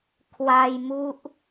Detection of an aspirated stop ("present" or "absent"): present